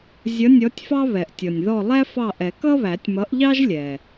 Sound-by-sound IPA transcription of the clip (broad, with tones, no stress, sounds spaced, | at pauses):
zʲ ʌ˨˥ nʲ ɔ˨˥ tʲ f ɑ˥ β ɛ˩ ʔ tʲ ɔ˩ nʲ ð ɔ˦˨ lˠ æ˥ f ɑ˦˨ ʔ ɛ˨˩˦ k ʌ˥ β æ˨˩˦ tʲ m ʌ˨˥ ʔ ʎ ɑ˥ ʒ lʲ ɛ˩